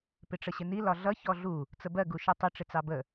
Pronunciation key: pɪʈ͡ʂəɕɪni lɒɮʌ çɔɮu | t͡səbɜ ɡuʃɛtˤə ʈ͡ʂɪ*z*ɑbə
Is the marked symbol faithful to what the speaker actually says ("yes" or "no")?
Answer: no